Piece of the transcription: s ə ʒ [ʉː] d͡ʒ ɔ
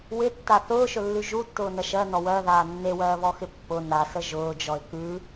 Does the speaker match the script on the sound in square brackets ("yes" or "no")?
no